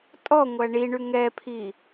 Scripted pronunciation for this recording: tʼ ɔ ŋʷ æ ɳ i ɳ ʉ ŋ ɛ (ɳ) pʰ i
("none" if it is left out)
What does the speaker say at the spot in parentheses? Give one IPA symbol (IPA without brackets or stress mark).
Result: none